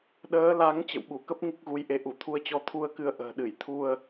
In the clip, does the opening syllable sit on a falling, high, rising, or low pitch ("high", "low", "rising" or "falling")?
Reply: rising